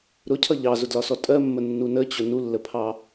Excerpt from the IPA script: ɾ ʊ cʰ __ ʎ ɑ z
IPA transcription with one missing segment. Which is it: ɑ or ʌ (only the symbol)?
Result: ʌ